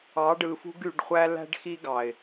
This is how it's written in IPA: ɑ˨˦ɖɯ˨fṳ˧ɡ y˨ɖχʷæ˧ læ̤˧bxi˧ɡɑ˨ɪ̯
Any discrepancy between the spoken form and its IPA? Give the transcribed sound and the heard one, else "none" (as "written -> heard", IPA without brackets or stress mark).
b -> ɖ